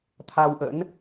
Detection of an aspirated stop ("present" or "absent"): present